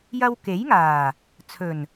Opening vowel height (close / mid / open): open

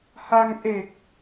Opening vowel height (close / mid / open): open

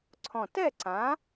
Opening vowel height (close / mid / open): mid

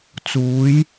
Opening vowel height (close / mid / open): close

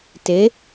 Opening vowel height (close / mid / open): mid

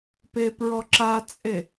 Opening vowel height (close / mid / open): mid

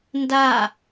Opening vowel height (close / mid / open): open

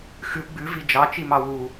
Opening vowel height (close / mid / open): close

